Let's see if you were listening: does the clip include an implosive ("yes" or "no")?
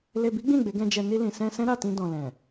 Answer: no